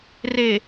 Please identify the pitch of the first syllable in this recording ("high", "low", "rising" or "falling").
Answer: low